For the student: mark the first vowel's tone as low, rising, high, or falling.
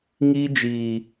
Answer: high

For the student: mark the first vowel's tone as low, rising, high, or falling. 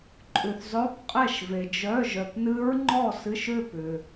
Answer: low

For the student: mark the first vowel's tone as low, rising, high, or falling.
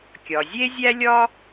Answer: low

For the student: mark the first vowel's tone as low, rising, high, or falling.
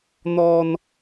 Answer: high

